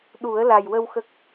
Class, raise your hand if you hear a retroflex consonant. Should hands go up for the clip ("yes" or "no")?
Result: no